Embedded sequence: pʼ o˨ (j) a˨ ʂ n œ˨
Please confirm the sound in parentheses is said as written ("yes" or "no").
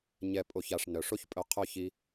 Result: no